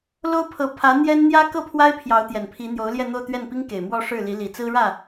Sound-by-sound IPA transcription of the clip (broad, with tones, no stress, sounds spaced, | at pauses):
l o˥ ʊ̯ pʰ ɤ˧˥ pʰ ä˧˥ n̪ j ɛ˥ n n̪ j ä˥ k ɤ˥˩ pʰ w a˥ ɪ̯ pʰ j ɑ˧˥ ʊ̯ t̪ j ɛ˨˩ n pʰ i˧˥ n̪ j o˧˥ ʊ̯ l j ɛ˥˧ n̪ o˥˧ ʊ̯ t̪ ɥ ɛ˥˩ n p i˥ ŋ k e˨˩ ɪ̯ m w ɔ˥˧ ʂ ɻ̩˥˩ l i˧˥ l i˨˩ t͡s ɹ̩˥ ɻ ä˥˩